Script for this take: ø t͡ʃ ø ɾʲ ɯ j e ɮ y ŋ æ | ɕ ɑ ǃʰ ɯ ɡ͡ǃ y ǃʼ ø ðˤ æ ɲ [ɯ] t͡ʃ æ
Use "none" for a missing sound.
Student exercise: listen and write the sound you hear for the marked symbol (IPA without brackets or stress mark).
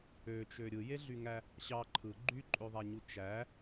u